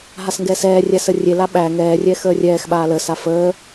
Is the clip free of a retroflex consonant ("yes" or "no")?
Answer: yes